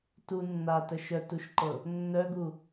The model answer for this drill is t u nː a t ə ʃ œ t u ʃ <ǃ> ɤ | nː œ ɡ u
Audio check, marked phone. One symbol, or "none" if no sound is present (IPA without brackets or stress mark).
ǃ